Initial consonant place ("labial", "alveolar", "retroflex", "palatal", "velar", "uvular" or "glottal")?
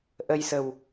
glottal